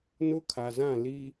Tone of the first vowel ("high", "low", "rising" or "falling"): high